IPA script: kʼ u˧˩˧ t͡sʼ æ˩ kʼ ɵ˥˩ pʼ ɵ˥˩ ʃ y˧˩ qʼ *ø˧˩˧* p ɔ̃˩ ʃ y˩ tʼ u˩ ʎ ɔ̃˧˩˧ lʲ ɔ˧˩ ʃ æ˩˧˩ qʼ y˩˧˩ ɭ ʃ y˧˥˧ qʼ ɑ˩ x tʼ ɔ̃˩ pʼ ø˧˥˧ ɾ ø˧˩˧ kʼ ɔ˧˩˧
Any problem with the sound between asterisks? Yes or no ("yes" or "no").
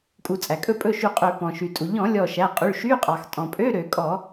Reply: no